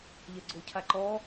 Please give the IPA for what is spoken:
ʎ ɛ ɡ͡ǀ o cʰ a ǃ ɔ

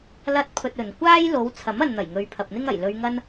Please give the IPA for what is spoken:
l ɐ˥ t̚ pʰ ɵ˧ t̚ ɵ˨ n kʷ aː˥ j l o˨˧ w t͡sʰ ɐ˨˥ m ɐ˨ n n̪ ɐ˨˩ j ŋ ɵ˨ ɥ pʰ ɐ˨ p̚ n̪ ɪ˥ ŋ ɐ˨˩ j l ɵ˧ ɥ ŋ ɐ˥ n

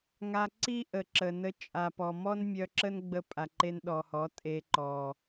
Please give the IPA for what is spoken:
ŋ a˧ ǀ i˦ ʔ ə˨ ǁ ə˨ n ə˧ t͡ʃʼ a˨ p ɔ˨ m ɔ˦ n mʲ œ˧ ǁ ə˦ n ɡ͡b ə˧ pʼ a˨ ǃ e˧ n ɗ ɔ˨ h ɔ˨˦ tʼ e˧ ǃ ɔ˨

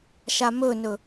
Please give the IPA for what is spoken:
ʃ a m ɵ n ɵ

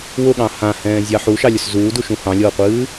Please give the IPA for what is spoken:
w ʊ ɠ ɑ̃ h ã h ɛ̃ː zʲ ɑ ħ u ʃ ɑ lʲ ʊ s z uː d u ʃ ũ h ɑ̃ lʲ ɤː qʷ ɨː

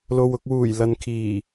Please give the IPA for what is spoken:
l o˨ w ʊ˧ k̚ w uː˨˩ j l ɐ˨ n kʰ iː˨˩

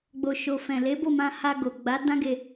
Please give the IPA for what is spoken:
ɡ͡b o˨ ʃ o˨ f ɛ̃˨ l e˨˦ b o˦˨ m ã˧ h a˧ ɡ o˨ ɡ͡b a˨˦ d ã˦ ɡ e˧

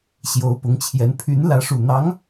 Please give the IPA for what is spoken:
ɕ j o˧˥ ʊ̯ p ʊ˧˥ ŋ t͡ɕʰ j ɛ˧˥ n pʰ y˧˥ n l ä˧˥ ʂ u˨˩ n̪ ɑ˧˥ ŋ

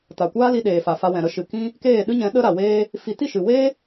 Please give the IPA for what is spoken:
t a˨ kʷ aː˦ l i˧ ɗ eː˨ f a˨ f a˧ w ɛ̃˨ ɾ ə˧ ʃ ɨ˨ k ĩ˦ | k eː˦˨ ɗ ɨ˦ ɲ ɛ̃˨˦ ɗ ə˦ ɾ a˨ w eː˦ | f i˧ t i˦˨ ʃ ɨ˨ w eː˦

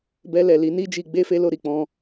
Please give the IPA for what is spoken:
b ɛ˧ l ɛ˨ l i˨˦ n i˦ d͡ʒ i˧ ɡ͡b e˦ f e˦ l o˦˨ ɾ i˨ k͡p ɔ̃˧

